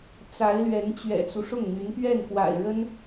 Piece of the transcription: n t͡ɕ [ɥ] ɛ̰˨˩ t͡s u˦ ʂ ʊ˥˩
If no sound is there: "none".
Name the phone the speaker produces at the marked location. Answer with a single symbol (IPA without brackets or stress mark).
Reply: ɥ